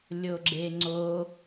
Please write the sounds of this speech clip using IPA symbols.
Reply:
lʲ o ɡ͡ǁ e ŋ͡ǀ o

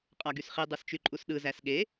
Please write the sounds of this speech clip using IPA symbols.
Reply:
qʼ ɑ ɡ y s χ i dˤ ɯ s t͡ʃ y ǃʼ u s ɗ ɯ z æ s ɠ e

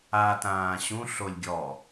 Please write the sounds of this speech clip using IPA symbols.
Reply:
a t ãː ɕ ũ ɬ o lʲ ɡʲ ɔ

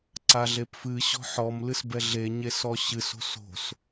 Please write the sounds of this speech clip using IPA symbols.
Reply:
ǀ a ɮ e p f ɨ ɕ ɔ̤ ħ ɔ m l ɨ s b ɛ ɮ e ɲ e s ɔ ɕ ɨ s o̤ s o̤ s

